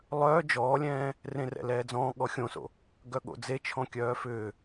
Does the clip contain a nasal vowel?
yes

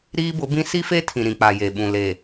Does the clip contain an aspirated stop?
yes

